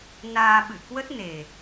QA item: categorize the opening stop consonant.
implosive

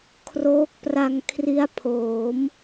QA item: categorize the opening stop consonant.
aspirated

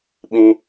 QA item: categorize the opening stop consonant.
implosive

